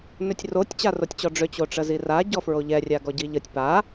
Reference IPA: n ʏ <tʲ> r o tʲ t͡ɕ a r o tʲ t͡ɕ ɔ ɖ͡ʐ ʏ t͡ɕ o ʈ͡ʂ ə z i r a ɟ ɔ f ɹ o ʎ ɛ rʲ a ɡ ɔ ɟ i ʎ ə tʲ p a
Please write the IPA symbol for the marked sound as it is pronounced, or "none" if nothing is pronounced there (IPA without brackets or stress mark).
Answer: tʲ